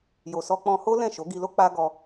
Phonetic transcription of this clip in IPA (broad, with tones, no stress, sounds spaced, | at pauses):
j o˨ s ɔ˧ k͡p ɔ̃˧ h o˦ l ɛ̃˦˨ ʃ o˨˦ ɡ i˧ l o˦ k͡p a˦ ɡ ɔ˧